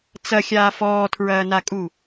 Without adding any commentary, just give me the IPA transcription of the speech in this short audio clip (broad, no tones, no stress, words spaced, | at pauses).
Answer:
t͡sɐxʲaː fɔːtʰɹɐːnakʼu